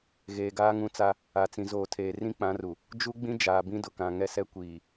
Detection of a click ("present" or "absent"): absent